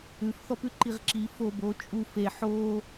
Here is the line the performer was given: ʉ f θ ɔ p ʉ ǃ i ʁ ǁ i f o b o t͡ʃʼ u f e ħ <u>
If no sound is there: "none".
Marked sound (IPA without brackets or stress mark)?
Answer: o